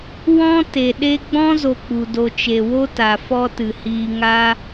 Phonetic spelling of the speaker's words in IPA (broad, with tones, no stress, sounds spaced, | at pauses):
w ɔ̃˦ t e˨ ɗ e˧ ɡ͡b ɔ̃˦ z o˧ k͡p u˨ d o˧ t͡ʃ e˨ w o˦ t a˨ f ɔ˦ t ɨ˨ h iː˧ ŋ a˦